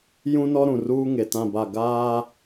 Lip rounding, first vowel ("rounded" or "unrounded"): rounded